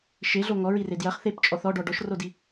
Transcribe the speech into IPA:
ʃ e ɮ o ŋ ɔ ɹ i r e d j ɐ χ θ e p t͡ʃʼ ɔ θ ɔ ɖ ɔ ɖ ɔ ʃ r o d i

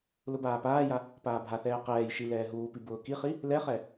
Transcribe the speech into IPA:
l ʊ b aː p aː j a | p aː bʱ a θ ɛː q ɛː j ʃ i l ɛː ɦ uː p i b ʊː k i χ i | l ɛ χ ɛ

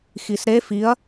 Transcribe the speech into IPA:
x i s ɾ e f i ɐ̯

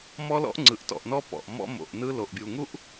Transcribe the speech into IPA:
m ɔ˦ l ɔ̰˦ ʔ ŋ͡ǀ ɯ˨ ʔ t ɔ̰˨ ʔ n ɔ˦ p ɔ̰˨ ʔ m ɔ̰˦ m o̰˨ ʔ n ɯ˦ l o˨ ʔ bʲ u˨ ŋ u˦ ʔ

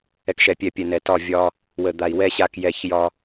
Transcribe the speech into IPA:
ɛ˨ k ʃ ɛ˨ pʲ ɛ˨ pʲ ɛ˨ n ɛ˨ t ɒ˦˨ vʲ ɒ˦ | w ə˨ d̪ a˨ i̯ w ɛ˦ ɕ a˦ k j ɛ˦˨ ç j ɒ˦

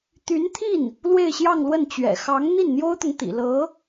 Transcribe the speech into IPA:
t̪ y˧˥ n t̪ʰ i˥˩ n | l w e˥˧ ɪ̯ ɕ j ɑ˥˧ ŋ l w ə˥˩ n t͡ɕ ɥ ɛ̰˨˩ x ɑ˧˥ ŋ n̪ i˥˩ n n̪ j o˥ ʊ̯ t̪ ʊ˨ ŋ t̪ ḭ˨˩ l ɤ˧˥

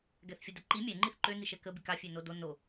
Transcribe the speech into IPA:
ɡ ɛ θ fʲ ə d ə ǃ i mʲ ɛ ŋ͡ǃ i θ ǃ ø n i ʃ ɛ k ə b i k a fʲ ø n o d o n o

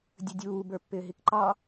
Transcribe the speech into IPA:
dʲ ə dʲ uː b ə˞ pː ɪː ɦ i k ǃ ɑ

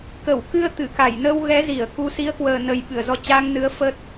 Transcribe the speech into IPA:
k ə˧˩ w k ɨ˧ ə̯ t̪ ɨ˧˩ k a˧˩ j n əː˧ w ɣ ɛ˨˦ z i˧˩ ə̯ k u˨˦ s i˨˦ ə̯ k w əː˨˩ n ə˨˩ j ɓ ɨ˧˩ ə̯ z ɔ˧ t͡ɕ aː˧ ŋ n ɨ˨˦ ə̯ f ə˦˥ t̚

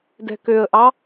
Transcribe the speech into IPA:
d ɛ̤ k ø ə̯ ʔ ɑ

